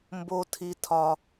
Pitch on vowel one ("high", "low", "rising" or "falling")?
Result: high